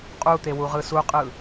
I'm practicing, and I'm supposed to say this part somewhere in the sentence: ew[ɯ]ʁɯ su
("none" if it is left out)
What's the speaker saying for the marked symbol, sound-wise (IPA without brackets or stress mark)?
u